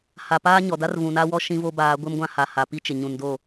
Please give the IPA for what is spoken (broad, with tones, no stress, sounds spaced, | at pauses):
h a˨ p aː˦ ɲ ɔ˨ d a˦ r v ũ˨ n a˦ w ɔ˦ ʃ ĩ˦ v o˦ b aː˨˦ ɡʷ ɪ˦ m ɡʷ ã˦ h a˨ h a˨ p i˦ t͡ʃ ɪ˨ ɲ ũ˨ n d o˦˨